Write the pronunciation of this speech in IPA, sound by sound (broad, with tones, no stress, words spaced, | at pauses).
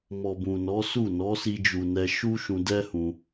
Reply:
mɔ˨bũ˨nɔ˨˦su˦˨ nɔ˨˦si˧d͡ʒu˨nɛ˧ ʃu˦ʃũ˧dɛ˦ hũ˧